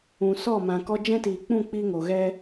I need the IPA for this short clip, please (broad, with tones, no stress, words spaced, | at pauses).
ũ˨sɔ˦˨ mã˨kɔ˧ d͡ʒɛ̃˦tiː˨k͡pũ˦˨ k͡piː˦ŋo˨ɣɛ˦